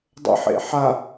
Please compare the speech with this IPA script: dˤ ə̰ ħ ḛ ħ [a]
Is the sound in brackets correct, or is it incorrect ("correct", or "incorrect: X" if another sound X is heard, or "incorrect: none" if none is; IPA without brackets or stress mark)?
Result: correct